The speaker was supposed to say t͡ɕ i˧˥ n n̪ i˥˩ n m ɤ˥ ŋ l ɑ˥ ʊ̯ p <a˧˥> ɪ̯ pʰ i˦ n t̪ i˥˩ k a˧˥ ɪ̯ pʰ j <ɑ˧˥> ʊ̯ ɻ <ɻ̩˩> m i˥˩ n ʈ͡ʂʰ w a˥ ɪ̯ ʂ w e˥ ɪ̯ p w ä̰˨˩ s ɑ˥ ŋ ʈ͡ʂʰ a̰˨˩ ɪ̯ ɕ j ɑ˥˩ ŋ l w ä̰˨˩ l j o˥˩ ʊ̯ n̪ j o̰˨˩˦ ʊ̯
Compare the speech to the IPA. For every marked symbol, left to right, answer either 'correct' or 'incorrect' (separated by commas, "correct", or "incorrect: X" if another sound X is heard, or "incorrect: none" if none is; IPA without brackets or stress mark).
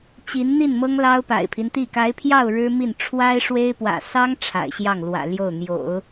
incorrect: a̰˨˩, incorrect: ɑ˥˩, incorrect: ɻ̩˥